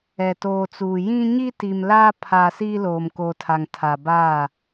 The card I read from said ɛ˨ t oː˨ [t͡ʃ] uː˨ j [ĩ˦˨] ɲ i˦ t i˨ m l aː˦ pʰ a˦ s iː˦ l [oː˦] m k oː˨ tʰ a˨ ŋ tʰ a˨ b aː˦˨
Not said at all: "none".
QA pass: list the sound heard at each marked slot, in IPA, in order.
t͡s, ĩ˦, oː˨

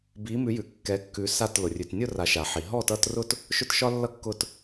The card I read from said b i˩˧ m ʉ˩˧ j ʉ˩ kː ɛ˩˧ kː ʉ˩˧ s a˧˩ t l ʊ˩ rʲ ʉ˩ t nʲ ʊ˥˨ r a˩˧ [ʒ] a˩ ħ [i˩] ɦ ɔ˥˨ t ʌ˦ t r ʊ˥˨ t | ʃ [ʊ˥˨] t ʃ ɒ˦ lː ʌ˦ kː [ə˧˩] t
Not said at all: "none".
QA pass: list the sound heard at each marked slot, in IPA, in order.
ʃ, i˩, ʊ˦, ʊ˧˩

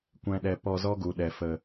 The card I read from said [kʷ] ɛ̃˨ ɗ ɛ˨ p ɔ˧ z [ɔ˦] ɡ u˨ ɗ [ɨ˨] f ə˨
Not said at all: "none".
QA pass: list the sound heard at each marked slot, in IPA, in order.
kʷ, ɔ˦, ɛ˨

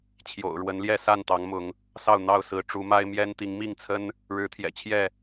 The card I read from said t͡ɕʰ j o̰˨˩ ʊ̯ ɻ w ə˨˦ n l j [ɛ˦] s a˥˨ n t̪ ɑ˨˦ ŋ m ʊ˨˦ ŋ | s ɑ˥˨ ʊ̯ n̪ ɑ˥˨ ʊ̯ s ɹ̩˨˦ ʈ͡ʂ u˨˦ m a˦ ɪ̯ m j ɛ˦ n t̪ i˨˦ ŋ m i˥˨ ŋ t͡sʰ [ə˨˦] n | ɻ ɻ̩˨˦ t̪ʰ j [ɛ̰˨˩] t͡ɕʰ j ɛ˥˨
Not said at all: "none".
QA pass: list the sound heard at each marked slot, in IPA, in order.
ɛ˥˨, ə˦, ɛ̰˨˩

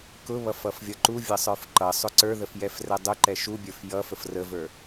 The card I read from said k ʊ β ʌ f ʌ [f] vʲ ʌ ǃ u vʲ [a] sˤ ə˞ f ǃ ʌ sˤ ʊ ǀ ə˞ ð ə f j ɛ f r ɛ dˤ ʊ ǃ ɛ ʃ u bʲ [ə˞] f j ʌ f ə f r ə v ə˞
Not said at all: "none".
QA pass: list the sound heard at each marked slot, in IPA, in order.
f, ʌ, ə˞

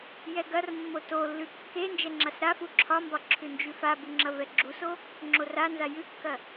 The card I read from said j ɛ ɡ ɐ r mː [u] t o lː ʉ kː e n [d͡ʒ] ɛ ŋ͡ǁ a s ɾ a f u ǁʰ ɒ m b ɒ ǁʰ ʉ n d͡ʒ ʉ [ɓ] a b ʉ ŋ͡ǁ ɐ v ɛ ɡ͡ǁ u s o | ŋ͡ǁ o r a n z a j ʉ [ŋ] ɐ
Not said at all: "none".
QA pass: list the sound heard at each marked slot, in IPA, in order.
o, d͡ʒ, f, kː

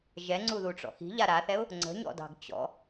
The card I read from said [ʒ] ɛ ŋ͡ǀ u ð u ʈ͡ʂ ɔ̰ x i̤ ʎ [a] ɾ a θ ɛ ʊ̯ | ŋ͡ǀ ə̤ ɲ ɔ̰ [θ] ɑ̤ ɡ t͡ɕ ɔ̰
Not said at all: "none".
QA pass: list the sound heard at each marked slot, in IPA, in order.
ʒ, a, d

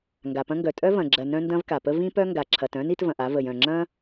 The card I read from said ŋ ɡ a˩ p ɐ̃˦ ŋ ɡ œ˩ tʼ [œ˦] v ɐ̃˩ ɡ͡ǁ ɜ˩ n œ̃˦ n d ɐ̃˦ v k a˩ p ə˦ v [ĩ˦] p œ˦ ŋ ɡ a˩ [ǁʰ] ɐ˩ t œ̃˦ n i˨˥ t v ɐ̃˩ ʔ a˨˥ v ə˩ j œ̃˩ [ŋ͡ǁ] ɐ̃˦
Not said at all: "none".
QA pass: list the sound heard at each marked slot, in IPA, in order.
œ˦, ĩ˦, ǁʰ, ŋ͡ǁ

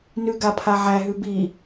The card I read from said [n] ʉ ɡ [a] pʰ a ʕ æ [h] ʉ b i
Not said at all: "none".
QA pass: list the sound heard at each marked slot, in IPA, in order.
n, a, ɦ

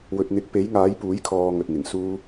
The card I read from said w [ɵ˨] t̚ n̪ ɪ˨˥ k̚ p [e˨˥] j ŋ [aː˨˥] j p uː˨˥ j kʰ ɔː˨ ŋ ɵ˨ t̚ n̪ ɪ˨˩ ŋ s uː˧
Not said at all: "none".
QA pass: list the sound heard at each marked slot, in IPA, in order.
ɵ˨, e˨˥, aː˨˥

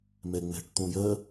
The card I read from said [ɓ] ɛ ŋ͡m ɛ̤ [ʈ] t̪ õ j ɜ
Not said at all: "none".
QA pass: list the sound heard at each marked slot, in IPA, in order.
m, ʈ

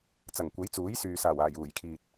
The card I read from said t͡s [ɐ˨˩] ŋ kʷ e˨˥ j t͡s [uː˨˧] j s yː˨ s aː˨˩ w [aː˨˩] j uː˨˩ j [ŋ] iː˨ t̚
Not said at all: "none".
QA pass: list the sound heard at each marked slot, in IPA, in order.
ɐ˨˩, uː˨˥, aː˨˩, kʰ

